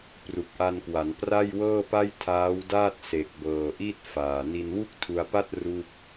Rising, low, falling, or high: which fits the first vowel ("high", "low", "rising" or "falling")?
low